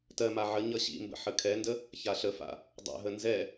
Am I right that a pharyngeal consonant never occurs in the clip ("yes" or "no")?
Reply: no